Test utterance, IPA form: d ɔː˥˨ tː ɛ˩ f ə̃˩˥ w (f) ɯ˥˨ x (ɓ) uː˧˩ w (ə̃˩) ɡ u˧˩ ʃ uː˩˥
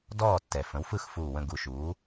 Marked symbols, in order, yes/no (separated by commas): yes, no, no